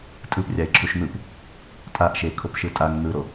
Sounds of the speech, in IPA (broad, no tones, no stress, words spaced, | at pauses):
tʼɯprʲaɪ̯ ǁʰuʃn̪ɯp | tʼaʔʃekʰop ʃɯtʼaŋ n̪ɯɾo